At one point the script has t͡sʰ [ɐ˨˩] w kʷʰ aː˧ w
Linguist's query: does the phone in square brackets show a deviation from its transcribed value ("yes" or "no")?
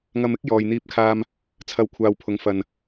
yes